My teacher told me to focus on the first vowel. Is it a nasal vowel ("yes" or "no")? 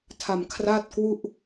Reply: no